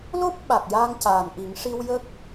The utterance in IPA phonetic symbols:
lo˦˥p̚ ɓa˨˩k̚jaː˧ŋcaː˨˩nʔi˨˩˦ŋ ʂi˧wjə˦˥k̚

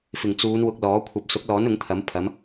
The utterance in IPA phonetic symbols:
fɪ˨˩ŋt͡suː˨˧n wʊ˧k̚lɔː˨˥ kʷʰɐ˨p̚sʊ˨˥k̚lɔː˨˥n ʊ˨˥ŋt̪ʰɐ˨˥m pʰɐ˨˧m

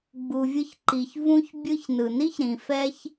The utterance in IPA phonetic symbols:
ɡ͡bu˩vʲɯ˧çǃi˩ç vũ˧çbʲɯ˧ç nɯ˩ni˥çɾĩ˩ fɛ˥ç

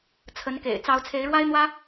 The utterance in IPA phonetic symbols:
t͡sʰə˨˦nkḛ˨˩ɪ̯ t͡sɑ˨˦ʊ̯t͡sʰe˨˦ɪ̯ɻwa˦ɪ̯n̪wä˦

